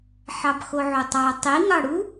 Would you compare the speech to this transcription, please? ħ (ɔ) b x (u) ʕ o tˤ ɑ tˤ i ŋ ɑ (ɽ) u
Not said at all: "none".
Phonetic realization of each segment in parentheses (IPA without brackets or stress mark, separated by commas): ɑ, o, ɽ